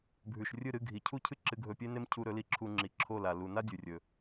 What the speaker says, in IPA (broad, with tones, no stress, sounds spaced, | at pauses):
bʱ ʉ˩ ʃ rʲ ɨ˥˩ ɾ ɨ˥˩ ɡʱ i˩ cʰ u˥ cʰ ɨ˥ ǁ ɨ˧ ɡʱ ɵ˧ pʲ e˥ n e˥ m cʰ u˧ ɾ ɵ˩˥ l i˧ ǁʰ u˧ ŋ͡ǁ i˩˥ ǁʰ o˥˩ l a˩ l u˩ n a˥ dʲ ʉ˩ rʲ ɵ˩